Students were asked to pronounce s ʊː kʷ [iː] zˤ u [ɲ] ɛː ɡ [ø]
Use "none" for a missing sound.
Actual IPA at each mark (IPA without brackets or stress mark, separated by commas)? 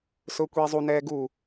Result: iː, n, u